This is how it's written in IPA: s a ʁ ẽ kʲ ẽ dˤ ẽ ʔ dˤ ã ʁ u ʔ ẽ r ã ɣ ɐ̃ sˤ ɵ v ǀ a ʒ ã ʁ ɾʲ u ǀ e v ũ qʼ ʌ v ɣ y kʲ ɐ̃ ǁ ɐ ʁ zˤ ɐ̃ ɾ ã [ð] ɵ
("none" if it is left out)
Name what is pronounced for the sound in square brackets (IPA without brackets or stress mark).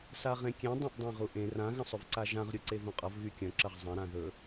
ð